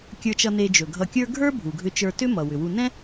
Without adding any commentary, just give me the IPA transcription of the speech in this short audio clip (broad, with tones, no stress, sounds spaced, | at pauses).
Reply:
kʲ ə˞˨ t͡ʃ ʌ˨ n e˨ d͡ʒ ɵ˩ ɡʱ ʌ˨ kʲ ə˞˦ ɡʱ ə˞˥ bʱ u˩ ɡʱ ʏ˨ t͡ʃ ə˞˨ t ʏ˦ m ʌ˩ w ʏ˩ w u˨ n ɛ̃˥